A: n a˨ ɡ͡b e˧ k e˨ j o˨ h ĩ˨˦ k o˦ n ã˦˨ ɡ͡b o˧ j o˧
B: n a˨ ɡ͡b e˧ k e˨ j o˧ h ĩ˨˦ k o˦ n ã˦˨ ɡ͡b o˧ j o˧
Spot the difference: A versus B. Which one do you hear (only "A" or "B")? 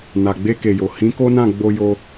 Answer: A